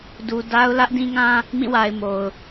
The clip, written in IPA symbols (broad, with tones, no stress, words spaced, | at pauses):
du˨da˦ʊ̯ lä˦ʔdĩ˦ŋã˦ | mĩ˦˨wa˨ɪ̯ mo˨ʊ̯